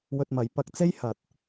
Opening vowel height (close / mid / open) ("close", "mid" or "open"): mid